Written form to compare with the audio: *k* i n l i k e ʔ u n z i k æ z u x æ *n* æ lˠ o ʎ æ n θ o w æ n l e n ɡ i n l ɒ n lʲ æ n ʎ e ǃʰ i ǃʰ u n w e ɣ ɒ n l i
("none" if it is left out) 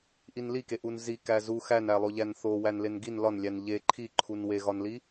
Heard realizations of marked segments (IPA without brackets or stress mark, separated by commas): ʔ, n